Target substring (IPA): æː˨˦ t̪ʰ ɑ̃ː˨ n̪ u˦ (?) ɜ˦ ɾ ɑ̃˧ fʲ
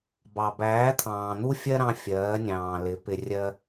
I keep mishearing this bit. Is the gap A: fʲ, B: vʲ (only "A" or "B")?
A